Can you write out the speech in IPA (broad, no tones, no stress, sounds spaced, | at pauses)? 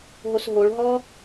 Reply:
ɦ o s ɦ o ɭ ɦ ɔː